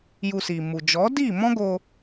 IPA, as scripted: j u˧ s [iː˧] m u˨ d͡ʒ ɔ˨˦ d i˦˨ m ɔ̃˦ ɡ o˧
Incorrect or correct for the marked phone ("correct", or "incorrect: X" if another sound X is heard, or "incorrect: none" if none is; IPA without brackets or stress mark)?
incorrect: iː˨